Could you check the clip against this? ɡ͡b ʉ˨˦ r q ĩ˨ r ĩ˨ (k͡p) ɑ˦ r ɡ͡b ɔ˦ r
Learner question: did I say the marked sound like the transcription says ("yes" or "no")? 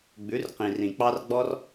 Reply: yes